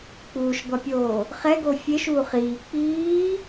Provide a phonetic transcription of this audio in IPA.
k͡p uː ʃ ɡʷ a pʲ oː | χ ɛ ɡ o fʲ e ʃ uː χ iː k͡p iː

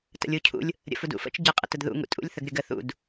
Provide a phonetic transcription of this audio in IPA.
t ə̰ lʲ u cʰ ṵ lʲ | ɾʲ ə̰ f u d ṵ f ə̰ t͡ʃ ɟ ə qʼ ə̰ t ə d ð ṵ ŋ ṵ tʼ ṵ lʲ θ ə ɡ ɾʲ ə ɡ ə θ ṵ d

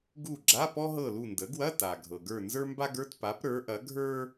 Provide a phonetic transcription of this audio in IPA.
ɡ u˦˨ ɡ͡ǁ a˧˥˧ p ɔ˥ ɦ ɤ˦˨ l u˦˨ n d ə˩˥ ɡ w ɐ˧˥˧ t a˩ ɡʱ ɤ˩ ɡ ə˞˦˨ n z ə˞˥ m b a˥ ɡ ə˞˧˥˧ t p a˩˥ p ɾ ə˞˩˥ ʔ ɐ˩˥ ɡʱ ə˞˥

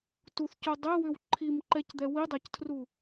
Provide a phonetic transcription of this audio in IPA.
t u θ c o dˤ ɛ w ʏ w ǃʰ i m ǃ ɛ c d̪ ɛ w i dˤ a c tʰ r u

